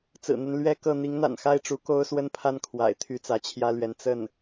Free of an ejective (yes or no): yes